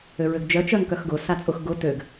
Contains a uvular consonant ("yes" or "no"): no